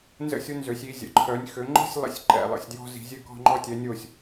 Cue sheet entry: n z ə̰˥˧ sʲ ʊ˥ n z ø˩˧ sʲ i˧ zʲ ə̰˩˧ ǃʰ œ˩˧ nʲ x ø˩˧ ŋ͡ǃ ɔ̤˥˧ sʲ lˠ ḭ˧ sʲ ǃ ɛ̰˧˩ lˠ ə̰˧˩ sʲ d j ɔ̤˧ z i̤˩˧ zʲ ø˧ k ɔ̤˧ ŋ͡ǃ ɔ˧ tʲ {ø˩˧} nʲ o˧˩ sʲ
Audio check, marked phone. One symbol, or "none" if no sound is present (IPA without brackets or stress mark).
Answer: ɛ˩˧